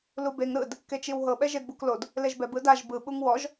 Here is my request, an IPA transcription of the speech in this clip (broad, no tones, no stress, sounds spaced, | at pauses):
l u b e ŋ ɾ ɯ d | k e t͡ʃ i w ɦ ɤ ɓ ɛ ʒ e d b u k l o d | l e ʒ b ɛ b ɯ d a ʒ b ɯ ɓ u ŋ w ɔ ʒ